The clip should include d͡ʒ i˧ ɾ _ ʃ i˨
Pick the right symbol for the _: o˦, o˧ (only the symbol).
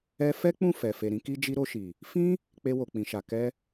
o˧